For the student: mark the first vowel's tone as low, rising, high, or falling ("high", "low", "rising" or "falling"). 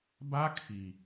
high